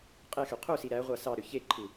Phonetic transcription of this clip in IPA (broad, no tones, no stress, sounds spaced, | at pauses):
qʼ e x ø qʰ u s i ɾ æ ʁʷ ɑ s ɑ ɾ ø ç e ǃʰ ɯ